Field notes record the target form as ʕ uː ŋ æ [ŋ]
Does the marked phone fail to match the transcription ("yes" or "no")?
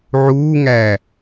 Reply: yes